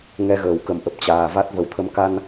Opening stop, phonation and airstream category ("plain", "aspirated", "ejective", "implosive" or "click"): plain